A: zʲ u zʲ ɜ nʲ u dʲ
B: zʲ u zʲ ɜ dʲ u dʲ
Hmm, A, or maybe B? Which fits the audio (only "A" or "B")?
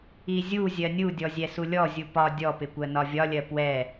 A